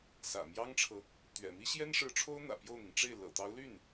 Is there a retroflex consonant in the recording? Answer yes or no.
yes